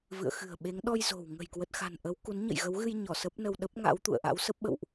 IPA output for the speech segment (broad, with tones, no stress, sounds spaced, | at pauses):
v ɨ̰˧˨ ə̯ x ɨ̤˨˩ ə̯ ɓ e˨˦ ŋ ɗ ɔ˧ j z o̤˨˩ w ŋ ə̤˨˩ j k w ə˨˩ t̚ x a̤˨˩ n ʔ ə˨˦ w k u˨˦ n ɲ ə̰˧˨ j ɣ ə˨˦ w ɣ ɨ˧ j ɲ ɔ˧˩ s ə˦˥ p̚ n ə˧ w ɗ ə˦˥ p̚ ŋ a̰˧˥ w t̪ ṵ˧˨ ə̯ ʔ a̰˧˥ w s ə˦˥ p̚ ɓ ə̰˧˨ w ʔ